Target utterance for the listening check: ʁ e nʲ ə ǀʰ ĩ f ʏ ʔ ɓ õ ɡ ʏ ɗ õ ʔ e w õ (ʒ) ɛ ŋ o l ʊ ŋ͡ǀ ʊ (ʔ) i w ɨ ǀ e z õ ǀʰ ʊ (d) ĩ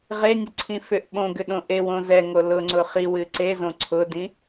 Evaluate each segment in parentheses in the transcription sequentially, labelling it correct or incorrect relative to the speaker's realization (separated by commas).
incorrect, incorrect, correct